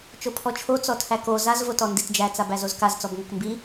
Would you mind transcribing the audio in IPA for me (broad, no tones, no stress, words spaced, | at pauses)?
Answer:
t͡ʃopʰɔt͡ʃʰo t͡sɔtʰæko zaz votɔnditd͡ʒæ t͡sabæzozkaz t͡sɔbŋɔkmbi